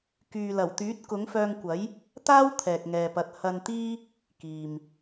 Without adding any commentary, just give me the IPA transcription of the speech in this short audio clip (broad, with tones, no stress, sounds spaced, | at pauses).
k yː˨ l ɐ˨˩ w t̪ yː˨˥ t̚ k ʊ˨˥ ŋ f œː˧ ŋ kʷ ɐ˨˥ j | t̪ aː˥ w t̪ʰ ɛː˨ k̚ ŋ ɛː˨ p ɐ˨˥ t̚ h ɐ˧ n t̪ iː˥ | k iː˨ m